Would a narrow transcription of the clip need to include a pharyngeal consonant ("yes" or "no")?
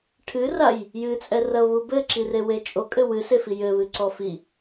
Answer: no